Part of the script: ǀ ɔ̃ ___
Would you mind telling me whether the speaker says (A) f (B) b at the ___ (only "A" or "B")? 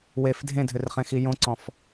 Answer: A